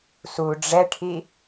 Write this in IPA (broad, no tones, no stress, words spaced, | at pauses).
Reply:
su ɖ͡ʐɛʈʰi